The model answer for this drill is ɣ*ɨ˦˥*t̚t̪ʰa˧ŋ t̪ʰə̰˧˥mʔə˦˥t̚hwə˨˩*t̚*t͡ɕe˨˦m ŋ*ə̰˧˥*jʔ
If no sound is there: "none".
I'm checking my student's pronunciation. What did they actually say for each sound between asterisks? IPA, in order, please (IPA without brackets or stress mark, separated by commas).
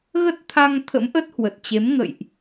ə˦˥, t̚, ə̰˧˨